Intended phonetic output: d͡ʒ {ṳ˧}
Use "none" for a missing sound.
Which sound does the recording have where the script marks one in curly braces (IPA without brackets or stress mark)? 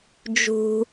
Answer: ṳ˧